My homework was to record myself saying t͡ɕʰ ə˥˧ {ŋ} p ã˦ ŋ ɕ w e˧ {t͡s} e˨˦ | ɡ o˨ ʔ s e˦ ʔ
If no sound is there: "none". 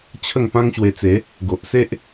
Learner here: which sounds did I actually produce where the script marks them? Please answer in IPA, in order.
ŋ, t͡s

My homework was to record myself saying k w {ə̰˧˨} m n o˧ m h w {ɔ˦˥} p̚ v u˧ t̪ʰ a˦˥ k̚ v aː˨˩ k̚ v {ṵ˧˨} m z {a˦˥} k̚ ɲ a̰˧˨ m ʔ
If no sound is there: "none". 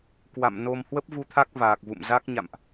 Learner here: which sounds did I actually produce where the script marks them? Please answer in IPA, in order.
a̰˧˨, ə˦˥, ṵ˧˨, a˦˥

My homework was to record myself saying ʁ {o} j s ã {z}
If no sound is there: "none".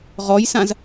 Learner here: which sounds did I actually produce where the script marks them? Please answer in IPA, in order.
ɔ, z

